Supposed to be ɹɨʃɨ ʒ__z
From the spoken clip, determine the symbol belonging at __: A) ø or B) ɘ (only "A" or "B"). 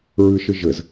B